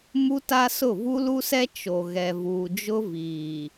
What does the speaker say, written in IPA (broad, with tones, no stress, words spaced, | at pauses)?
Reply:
mu˦ta˦sʊ˦˨ vu˦lu˦sɛ˦ t͡ʃo˨ɣɛ˨ vuː˨d͡ʒʊ˦ viː˨